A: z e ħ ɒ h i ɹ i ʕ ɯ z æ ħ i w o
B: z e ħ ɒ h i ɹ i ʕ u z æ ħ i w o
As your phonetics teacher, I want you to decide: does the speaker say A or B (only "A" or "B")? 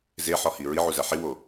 B